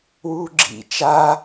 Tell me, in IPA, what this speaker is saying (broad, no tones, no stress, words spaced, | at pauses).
wuːɡ͡ǁḭ t͡ʃa